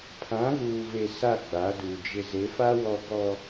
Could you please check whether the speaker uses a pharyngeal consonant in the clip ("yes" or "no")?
no